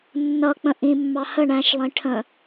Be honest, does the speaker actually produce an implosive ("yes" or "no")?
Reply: no